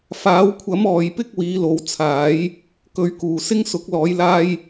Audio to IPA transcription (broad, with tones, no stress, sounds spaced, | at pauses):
f aː˨˥ w kʷʰ ɐ˨˥ m ɔː˨ j p ɪ˥ k̚ w iː˨˥ l o˨˥ w t͡sʰ aː˨˥ j | k ɵ˧ ɥ k uː˨ s ɪ˥ ŋ s ʊ˨˥ k̚ l ɔː˨˥ j l aː˥ j